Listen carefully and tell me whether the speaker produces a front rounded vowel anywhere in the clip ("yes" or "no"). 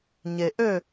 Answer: yes